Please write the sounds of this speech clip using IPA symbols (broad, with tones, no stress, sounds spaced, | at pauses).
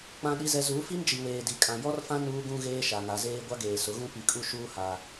k͡p ã˨ ɗ i˨ z ɛ˨ z u˨˦ f i˦ n d͡ʒ i˨ w eː˨ d i˨ kʼ ã˨ j ɔ˦ r f ã˦ n uː˦ ɡ ũ˦ ɣ eː˦ ʃ a˨ ŋ a˨ z eː˦ ɡʷ a˦ ɡ eː˨ s ʊ˨˦ ɣ ũ˦ p i˨ kʼ u˦ ʃ uː˦ h a˦